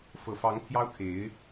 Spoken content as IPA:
f ɤ˨˩ f ɑ˧˥ ŋ pʰ j ɑ˥ ʊ̯ kʰ e˧˥ ɪ̯

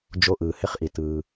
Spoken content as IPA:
d͡ʒ o˧˥ ʔ ɯː˩ h ɪ˧˥˧ χ ʔ i˩ t ɯː˩

